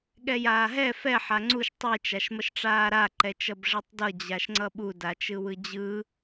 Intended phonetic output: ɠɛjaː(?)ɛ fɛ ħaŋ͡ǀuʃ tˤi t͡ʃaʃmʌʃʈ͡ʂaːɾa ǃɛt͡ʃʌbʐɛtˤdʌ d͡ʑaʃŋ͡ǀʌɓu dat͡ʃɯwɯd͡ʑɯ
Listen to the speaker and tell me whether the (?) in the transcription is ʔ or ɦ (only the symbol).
ɦ